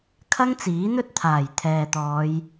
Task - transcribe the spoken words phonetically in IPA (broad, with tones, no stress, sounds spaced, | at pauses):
kʰ ɐ˥ ŋ t͡s iː˨˥ n̪ ɵ˥ t̚ t̪ʰ aː˨˩ j t̪ʰ ɛː˨ t̪ ɔː˨˧ j